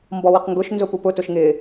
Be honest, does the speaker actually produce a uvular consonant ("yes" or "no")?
yes